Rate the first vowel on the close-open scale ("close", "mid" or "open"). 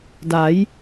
open